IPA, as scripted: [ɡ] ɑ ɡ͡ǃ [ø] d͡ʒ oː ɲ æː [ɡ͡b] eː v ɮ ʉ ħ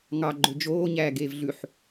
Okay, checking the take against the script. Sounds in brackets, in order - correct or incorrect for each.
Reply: incorrect: ŋ, correct, incorrect: ɡ

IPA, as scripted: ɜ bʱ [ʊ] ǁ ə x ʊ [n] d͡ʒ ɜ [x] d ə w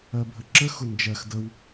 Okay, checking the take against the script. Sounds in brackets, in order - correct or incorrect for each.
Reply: incorrect: ə, correct, correct

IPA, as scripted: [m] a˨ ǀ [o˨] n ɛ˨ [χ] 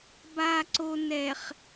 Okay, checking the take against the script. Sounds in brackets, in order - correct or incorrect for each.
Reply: incorrect: b, correct, correct

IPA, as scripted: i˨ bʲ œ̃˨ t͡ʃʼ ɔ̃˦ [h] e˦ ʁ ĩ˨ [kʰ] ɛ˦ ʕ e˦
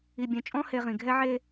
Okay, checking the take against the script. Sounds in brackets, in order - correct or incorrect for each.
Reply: correct, incorrect: ɡʱ

